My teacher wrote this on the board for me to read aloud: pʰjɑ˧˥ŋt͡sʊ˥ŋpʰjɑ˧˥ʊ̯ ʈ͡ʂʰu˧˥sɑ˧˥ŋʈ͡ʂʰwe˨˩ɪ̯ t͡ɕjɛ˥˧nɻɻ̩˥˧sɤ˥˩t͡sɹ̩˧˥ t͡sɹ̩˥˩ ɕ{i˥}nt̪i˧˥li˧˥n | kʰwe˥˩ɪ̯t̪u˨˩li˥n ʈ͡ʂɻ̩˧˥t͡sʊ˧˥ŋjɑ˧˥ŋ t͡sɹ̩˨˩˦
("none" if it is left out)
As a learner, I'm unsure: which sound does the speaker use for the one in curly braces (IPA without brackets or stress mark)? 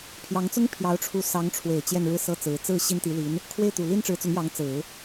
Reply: i˥